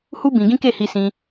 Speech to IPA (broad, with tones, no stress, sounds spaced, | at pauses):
h u˦ b ĩ˧ ɡ ĩ˦ k e˦˨ h i˧ s ĩ˧